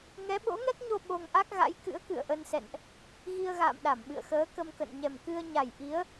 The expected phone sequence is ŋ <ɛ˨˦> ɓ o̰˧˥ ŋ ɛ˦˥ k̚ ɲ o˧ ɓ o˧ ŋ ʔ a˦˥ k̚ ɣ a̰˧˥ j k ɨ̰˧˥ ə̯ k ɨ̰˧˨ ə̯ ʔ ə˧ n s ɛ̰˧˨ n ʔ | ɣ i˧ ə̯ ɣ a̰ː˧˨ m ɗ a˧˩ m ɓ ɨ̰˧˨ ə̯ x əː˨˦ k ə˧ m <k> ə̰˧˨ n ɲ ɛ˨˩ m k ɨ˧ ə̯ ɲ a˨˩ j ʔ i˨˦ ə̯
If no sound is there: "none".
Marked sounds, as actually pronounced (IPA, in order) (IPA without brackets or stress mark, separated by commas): ɛ˨˦, k